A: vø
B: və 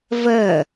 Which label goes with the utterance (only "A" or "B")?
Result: B